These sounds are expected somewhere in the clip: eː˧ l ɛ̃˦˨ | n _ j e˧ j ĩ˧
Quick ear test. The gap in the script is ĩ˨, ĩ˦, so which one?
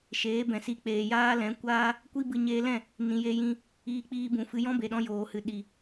ĩ˨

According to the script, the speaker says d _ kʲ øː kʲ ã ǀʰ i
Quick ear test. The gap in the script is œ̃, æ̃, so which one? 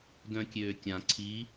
œ̃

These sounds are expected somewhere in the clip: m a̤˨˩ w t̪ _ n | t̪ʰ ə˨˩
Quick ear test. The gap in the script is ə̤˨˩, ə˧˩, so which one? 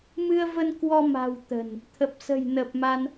ə̤˨˩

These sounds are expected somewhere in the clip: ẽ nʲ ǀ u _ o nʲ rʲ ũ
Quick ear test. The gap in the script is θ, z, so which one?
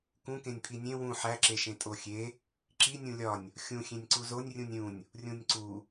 z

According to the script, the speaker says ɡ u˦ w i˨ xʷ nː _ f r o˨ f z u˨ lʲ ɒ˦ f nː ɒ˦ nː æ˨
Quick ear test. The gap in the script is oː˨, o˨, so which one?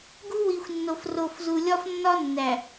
o˨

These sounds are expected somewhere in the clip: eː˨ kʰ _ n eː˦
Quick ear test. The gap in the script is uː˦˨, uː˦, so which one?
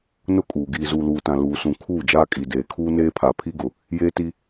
uː˦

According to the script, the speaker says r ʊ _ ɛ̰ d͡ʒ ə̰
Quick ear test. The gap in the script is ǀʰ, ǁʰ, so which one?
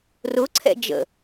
ǀʰ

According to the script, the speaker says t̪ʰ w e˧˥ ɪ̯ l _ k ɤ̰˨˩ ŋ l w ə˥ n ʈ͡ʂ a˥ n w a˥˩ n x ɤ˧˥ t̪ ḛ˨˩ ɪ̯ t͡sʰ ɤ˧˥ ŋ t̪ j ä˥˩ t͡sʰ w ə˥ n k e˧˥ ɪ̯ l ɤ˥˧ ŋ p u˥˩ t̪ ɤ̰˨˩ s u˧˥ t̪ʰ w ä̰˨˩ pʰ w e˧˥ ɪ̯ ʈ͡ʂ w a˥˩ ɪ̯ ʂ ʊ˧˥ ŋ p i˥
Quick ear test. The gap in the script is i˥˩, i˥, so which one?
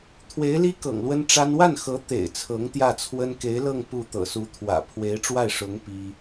i˥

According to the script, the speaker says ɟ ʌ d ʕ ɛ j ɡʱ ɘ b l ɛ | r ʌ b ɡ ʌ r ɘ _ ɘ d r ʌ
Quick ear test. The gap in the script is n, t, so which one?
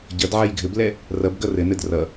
n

